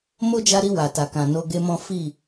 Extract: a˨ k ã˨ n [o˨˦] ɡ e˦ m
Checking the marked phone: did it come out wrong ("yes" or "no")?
yes